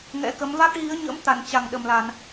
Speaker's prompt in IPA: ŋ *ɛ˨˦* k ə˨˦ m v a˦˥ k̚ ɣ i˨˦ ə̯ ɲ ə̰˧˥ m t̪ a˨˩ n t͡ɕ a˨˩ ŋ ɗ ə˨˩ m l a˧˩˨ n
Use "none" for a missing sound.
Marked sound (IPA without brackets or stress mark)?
ɛ̰˧˥